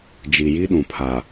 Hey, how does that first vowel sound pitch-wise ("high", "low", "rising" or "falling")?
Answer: low